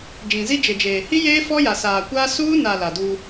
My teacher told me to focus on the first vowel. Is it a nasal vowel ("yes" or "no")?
yes